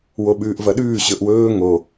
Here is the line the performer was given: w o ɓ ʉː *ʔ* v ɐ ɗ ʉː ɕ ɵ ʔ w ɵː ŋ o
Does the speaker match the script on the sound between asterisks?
yes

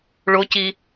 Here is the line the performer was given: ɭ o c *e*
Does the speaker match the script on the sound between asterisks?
no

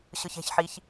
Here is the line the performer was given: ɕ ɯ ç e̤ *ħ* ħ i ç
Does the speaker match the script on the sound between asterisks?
no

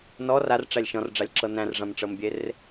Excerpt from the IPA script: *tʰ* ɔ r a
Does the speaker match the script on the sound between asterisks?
no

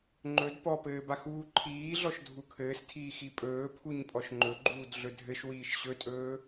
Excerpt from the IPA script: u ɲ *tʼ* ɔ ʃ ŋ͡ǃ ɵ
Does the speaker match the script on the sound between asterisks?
no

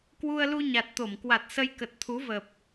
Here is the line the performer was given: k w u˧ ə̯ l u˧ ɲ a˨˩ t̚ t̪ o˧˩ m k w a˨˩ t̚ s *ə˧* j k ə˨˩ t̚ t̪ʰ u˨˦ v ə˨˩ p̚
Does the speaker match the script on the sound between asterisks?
yes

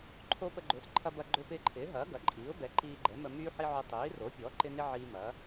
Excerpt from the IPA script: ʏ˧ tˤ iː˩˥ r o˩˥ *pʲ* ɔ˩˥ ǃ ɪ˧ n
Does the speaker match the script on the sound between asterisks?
yes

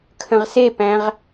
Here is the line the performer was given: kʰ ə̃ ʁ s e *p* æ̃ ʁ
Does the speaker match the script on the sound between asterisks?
yes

